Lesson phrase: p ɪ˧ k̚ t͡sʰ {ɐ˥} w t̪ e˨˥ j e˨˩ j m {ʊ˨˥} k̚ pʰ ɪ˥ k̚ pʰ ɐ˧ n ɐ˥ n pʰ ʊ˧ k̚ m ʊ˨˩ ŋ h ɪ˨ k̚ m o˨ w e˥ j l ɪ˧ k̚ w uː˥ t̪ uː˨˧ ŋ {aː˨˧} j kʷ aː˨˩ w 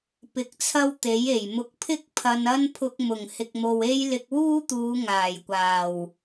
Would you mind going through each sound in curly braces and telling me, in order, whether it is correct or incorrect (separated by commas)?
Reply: correct, correct, incorrect